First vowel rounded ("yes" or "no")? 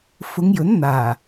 yes